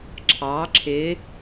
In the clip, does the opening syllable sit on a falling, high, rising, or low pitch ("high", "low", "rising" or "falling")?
rising